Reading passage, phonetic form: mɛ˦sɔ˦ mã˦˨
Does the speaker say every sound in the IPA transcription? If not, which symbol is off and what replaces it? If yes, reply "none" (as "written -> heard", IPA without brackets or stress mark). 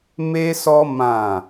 ɛ˦ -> e˦